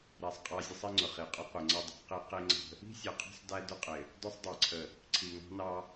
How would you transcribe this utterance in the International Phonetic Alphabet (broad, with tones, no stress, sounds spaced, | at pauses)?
ɾ æ˨ sˤ qʼ ɑ˦ zʲ ə˦ sˤ i˦ ŋ͡ǀ ʊ˨ χ i˨ qʼ ʊ˦ qʷ i˨ ŋ͡ǀ ʌ˦ dˤ ɑ̤˦ q i˦ q i˦ ŋ͡ǀ ə̤˦ | i̤˦ sʲ ʌ˨ qʰ ɑ̤˦ sˤ d æ˦ d ʊ˦ qʼ ɪ˨ | d ʊ˦ sˤ dˤ ɑ˨ ǀʰ ə˨ | ǀʰ i˨ ŋ ɑ̤˦ n ɑ˦